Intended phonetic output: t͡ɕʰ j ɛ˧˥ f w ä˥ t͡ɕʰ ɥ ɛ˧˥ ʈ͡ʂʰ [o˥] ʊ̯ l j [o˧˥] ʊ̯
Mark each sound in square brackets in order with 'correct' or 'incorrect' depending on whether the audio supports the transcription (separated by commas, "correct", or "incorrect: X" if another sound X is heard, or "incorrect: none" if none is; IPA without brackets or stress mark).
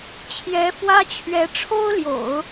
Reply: correct, incorrect: o̰˨˩˦